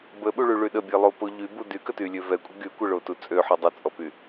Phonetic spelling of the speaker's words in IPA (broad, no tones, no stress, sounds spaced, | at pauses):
b ə ɓ u ɭ y ɭ y ɗ ə bʲ e lˠ o p o ʎ y b u d y k ə t y lʲ ø v ɛ kʷʼ ə ɡ y kʷ ə ɭ o t u t͡sʼ ø ħ y dˤ ə t͡sʼ ɔ p y